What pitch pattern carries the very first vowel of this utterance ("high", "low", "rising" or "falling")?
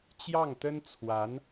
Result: falling